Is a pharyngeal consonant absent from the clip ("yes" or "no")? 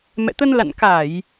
yes